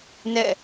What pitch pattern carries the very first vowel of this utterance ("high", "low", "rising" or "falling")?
falling